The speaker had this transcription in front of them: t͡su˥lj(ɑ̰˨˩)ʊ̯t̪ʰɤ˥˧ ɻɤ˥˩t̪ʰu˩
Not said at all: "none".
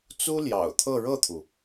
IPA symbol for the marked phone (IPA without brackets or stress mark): ɑ̰˨˩